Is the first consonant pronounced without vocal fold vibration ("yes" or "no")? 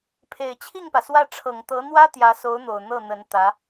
yes